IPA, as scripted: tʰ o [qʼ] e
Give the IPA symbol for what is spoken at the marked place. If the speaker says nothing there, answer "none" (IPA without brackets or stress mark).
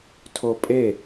pʼ